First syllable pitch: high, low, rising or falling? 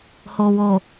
low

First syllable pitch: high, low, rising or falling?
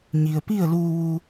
low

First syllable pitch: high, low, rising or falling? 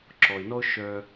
low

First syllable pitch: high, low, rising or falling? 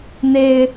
low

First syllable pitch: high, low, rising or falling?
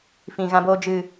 low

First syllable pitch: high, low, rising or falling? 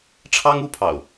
high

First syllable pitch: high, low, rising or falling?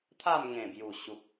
falling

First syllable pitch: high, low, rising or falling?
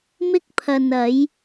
high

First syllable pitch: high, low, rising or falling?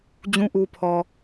low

